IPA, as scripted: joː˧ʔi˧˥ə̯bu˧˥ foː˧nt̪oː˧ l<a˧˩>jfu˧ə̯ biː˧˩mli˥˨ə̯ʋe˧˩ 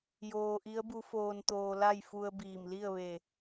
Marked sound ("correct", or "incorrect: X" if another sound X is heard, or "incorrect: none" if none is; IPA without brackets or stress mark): incorrect: a˥˨